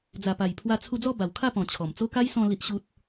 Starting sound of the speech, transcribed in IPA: d͡z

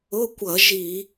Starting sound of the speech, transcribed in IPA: ʊ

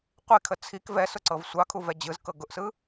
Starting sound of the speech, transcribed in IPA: qʷ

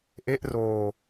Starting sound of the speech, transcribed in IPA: ʔ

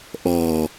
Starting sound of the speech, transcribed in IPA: ʔ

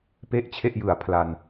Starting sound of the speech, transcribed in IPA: p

